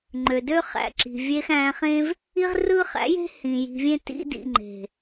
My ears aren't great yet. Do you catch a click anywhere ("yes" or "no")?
yes